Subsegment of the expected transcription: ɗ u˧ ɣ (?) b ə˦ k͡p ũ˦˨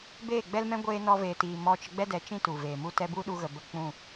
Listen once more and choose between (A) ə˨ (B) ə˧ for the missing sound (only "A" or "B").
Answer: A